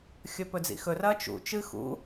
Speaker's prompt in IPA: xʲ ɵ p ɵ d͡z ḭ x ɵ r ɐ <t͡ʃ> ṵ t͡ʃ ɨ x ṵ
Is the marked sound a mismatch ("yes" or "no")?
no